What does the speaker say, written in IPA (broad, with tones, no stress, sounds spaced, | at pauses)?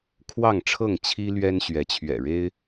kʰ w ɑ˥˨ ŋ ʈ͡ʂʰ ɤ˥˨ ŋ t͡ɕʰ i˦ l ɥ ɛ˦ n ɕ ɥ ɛ˨˦ t͡ɕʰ ɥ ɛ̰˨˩ ɻ e˦ ɪ̯